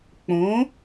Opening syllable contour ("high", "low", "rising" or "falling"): rising